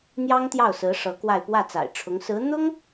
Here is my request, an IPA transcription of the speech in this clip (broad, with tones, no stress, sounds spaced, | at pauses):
n̪ j ɑ˥ ŋ t̪ j ɑ˥˩ ʊ̯ s ɹ̩˧˥ ʂ ɤ˧˥ k w a˥˧ ɪ̯ p w ä˥˩ t͡s a̰˨˩ ɪ̯ ʈ͡ʂʰ ʊ˧˥ ŋ s ɹ̩˧˥ n̪ ʊ˥ ŋ